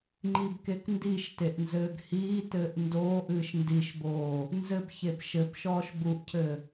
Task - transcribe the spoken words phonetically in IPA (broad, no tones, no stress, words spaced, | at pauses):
ŋ͡ǃibkekndiʃteʔ nzɘːɡhiːtɘːʔ ndoːʔɨːʃ ndiʃboː | nzɘbçeb ʃɘb ʃɔːʃbuʔcʰɘ